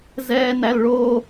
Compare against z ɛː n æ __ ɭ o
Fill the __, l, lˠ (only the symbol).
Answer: l